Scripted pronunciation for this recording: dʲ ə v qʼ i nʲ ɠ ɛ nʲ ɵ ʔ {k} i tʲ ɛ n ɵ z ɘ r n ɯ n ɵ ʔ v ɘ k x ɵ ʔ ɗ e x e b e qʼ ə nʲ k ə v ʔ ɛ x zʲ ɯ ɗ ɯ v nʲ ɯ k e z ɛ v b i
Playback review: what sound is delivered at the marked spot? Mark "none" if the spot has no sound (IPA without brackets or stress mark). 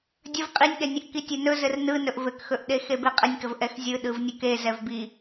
k